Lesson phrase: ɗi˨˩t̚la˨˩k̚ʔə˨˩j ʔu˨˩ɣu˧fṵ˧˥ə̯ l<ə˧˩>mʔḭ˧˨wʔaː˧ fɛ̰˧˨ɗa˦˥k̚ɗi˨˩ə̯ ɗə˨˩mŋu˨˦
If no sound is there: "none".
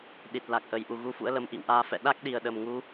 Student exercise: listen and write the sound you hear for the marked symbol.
ə˨˦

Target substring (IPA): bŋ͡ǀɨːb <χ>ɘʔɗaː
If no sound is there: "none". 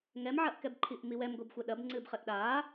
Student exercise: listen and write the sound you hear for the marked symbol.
χ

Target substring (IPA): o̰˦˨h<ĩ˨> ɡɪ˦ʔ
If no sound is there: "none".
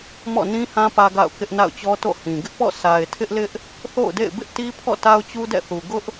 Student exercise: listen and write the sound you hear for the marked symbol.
ĩ˨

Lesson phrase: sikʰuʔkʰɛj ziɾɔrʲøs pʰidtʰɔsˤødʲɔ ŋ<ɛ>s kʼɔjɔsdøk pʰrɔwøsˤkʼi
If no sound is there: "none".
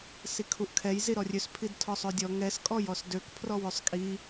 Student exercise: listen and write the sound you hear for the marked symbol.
ɛ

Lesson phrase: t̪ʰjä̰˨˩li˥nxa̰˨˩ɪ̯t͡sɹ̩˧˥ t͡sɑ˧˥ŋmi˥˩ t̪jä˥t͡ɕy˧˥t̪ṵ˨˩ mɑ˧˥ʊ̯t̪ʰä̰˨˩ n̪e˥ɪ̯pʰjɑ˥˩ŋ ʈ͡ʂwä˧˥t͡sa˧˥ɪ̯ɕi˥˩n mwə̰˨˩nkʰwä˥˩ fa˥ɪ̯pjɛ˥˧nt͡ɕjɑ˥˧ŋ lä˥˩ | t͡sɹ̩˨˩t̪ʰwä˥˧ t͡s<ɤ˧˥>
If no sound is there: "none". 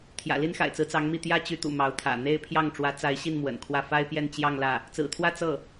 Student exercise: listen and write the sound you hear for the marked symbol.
ɤ˥˩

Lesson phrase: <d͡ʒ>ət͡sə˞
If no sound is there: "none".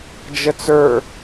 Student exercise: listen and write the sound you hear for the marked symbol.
d͡ʒ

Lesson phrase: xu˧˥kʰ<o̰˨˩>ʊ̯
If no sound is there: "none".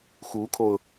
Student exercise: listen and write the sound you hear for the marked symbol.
o˧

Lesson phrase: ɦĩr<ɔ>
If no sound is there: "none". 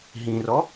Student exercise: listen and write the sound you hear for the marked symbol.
ɔ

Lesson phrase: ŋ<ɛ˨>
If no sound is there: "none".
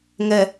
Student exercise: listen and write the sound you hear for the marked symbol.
ɛ˨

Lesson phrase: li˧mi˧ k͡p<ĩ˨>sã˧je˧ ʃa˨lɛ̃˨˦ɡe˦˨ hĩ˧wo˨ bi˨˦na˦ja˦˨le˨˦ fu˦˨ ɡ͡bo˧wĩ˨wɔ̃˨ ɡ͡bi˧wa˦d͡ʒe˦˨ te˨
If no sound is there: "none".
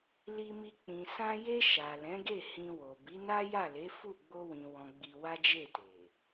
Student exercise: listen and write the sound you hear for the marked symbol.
ĩ˨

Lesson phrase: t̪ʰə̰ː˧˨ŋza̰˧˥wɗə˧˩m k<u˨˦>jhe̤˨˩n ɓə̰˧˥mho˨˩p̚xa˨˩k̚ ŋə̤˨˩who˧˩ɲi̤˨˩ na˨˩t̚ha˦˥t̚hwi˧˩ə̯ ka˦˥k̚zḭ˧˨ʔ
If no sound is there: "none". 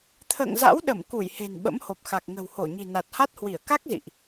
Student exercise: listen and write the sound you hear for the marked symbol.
u˧˩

